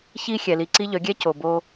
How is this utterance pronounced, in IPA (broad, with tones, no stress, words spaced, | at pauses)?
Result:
çi˧ xʲɛ˨li˨ǀi˦ ʎœ˨˦ ɡʲɛ˦ co˨bo˧